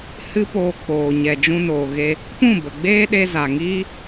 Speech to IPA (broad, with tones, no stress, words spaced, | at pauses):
hɨ˦poː˧ k͡poː˨ ɲɛ˨d͡ʒũ˧noː˨ɣe˧ | pũ˦˨bə˨ɡ͡beː˦ɗe˧ za˨ŋiː˦